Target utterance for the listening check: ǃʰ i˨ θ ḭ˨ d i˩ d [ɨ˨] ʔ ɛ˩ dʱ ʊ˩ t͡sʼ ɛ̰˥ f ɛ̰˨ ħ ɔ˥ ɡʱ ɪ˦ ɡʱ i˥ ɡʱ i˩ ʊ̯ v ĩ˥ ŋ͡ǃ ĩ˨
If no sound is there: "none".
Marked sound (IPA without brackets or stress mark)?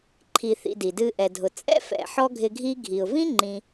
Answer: ɨ˨